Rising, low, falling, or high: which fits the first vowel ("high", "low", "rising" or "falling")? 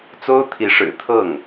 high